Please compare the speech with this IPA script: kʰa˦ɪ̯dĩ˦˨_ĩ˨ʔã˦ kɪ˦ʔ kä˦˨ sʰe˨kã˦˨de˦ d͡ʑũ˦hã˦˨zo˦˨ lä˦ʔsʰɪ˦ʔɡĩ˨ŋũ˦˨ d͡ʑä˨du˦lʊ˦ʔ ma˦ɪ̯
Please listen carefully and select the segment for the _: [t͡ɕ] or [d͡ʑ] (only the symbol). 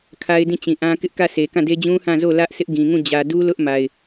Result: t͡ɕ